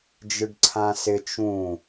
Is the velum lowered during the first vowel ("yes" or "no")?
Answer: no